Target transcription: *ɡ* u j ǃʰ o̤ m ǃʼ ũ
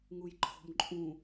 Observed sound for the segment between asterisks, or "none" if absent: ŋ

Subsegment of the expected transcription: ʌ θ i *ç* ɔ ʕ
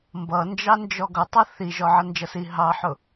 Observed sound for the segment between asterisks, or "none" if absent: ʒ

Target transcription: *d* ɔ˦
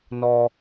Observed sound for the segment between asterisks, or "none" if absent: n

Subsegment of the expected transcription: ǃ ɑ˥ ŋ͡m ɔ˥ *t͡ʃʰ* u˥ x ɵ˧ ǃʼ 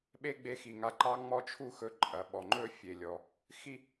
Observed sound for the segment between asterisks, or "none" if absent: t͡ʃʰ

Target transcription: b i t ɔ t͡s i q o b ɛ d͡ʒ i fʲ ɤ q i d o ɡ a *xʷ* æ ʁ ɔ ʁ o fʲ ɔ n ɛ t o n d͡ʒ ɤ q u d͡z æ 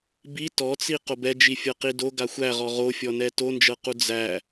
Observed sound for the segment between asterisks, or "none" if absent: xʷ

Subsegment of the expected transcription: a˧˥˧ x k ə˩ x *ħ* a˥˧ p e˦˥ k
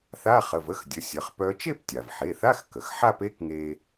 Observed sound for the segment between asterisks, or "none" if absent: ħ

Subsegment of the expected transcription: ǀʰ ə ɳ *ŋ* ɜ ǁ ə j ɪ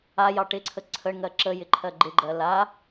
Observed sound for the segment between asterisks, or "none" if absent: ŋ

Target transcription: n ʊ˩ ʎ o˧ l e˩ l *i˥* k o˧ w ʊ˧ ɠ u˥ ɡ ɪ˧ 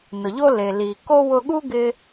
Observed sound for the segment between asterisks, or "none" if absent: i˩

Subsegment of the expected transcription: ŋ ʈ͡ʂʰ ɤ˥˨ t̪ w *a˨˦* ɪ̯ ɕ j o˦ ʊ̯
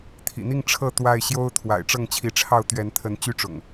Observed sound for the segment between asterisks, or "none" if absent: a˥˨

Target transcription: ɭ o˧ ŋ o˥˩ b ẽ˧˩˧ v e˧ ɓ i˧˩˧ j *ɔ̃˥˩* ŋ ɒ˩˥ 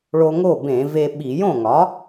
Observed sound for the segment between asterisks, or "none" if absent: õ˥˩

